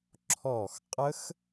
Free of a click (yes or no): no